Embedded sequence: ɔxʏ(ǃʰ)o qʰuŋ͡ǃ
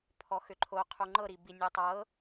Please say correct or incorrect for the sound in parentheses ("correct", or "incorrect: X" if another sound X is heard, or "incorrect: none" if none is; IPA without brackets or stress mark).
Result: correct